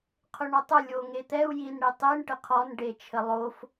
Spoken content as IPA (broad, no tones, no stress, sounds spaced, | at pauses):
qʰ ʊ ɳ o tˤ ʊ lʲ o ŋ e t̪ ɛ u̯ j i n ɽ i tˤ i ɳ ʈ ə qʰ ɔ n ɖ e t͡ʃʰ ə lˠ o f